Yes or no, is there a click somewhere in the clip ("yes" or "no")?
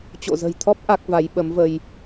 no